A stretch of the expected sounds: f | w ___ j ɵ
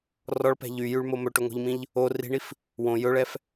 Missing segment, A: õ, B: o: A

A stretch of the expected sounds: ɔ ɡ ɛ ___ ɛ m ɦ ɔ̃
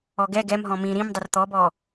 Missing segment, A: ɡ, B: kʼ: A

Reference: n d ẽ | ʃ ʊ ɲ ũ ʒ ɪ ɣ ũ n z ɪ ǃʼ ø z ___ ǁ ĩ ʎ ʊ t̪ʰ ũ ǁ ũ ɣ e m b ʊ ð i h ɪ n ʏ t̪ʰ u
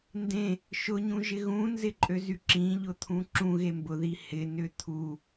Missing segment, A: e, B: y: B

